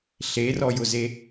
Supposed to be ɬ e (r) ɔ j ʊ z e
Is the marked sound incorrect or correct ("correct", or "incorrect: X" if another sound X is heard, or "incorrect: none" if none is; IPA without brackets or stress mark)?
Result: correct